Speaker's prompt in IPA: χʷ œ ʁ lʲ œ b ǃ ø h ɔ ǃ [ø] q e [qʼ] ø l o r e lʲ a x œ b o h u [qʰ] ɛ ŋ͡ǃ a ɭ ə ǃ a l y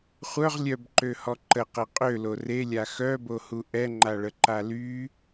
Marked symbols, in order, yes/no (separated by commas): no, yes, no